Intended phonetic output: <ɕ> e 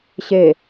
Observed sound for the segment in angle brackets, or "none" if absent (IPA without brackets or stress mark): ɕ